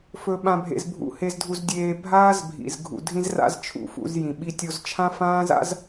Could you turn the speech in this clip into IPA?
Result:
f ɵ˧ ɓ ã˧ bʱ ḛ˧ z bʱ ṵ˧ h e˧ z dʱ u˧ z dʲ eː˧ bʱ aː˦ z bʱ ḭ˨ z ɡʱ ṵ˨ dʱ ĩ˧ z r a̰˧ z t͡ʃʰ ṵ˨ f ṵ˧ z j ĩ˨ ɓ i˧ tʲ o˧ z t͡ʃʰ ã˦ f ãː˦ z a̰˦ z

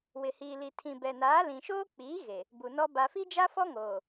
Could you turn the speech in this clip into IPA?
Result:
w ɪ˨ h iː˨ l i˨ tʰ ĩ˨ b ɛ˨ n aː˨˦ l ĩ˨ ʃ oː˦ k͡p iː˨˦ ɣ e˨ | b u˨ n ɔ˦ b a˨ f i˦ d͡ʒ a˦ f ɔ˦ ŋ oː˨

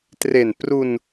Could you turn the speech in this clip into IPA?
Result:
t r e˨˩ n p r u˧ n

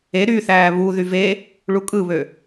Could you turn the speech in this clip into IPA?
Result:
e ɾ y θ æː β u ð y v e | ɭ u kʼ ɯ β ø

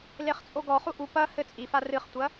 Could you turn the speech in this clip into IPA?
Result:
l e χ t͡sʼ o ɡ ɔ χ u ʔ u p ɐ h ɘ t͡sʼ i f a r ɨ χ tʷ ɐ

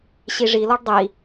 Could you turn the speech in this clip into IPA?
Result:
ɕ i ʐ i l ɔ ɖ dˤ i

